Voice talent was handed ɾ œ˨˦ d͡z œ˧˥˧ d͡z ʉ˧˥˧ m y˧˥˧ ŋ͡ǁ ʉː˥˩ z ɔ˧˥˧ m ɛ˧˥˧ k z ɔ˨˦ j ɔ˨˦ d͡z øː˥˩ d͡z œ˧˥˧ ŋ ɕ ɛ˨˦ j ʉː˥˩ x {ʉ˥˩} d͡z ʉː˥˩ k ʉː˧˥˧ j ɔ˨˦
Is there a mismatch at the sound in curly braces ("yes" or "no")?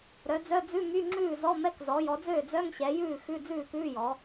yes